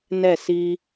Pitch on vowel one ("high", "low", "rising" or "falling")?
falling